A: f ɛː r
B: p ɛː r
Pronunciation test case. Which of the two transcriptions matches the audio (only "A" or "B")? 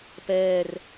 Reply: B